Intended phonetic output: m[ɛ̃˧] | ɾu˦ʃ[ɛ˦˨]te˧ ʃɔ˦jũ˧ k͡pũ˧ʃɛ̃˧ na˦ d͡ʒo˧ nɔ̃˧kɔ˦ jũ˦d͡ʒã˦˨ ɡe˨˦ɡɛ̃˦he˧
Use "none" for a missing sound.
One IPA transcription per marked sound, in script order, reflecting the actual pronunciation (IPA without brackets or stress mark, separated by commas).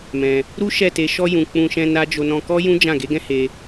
ɛ̃˧, ɛ˦˨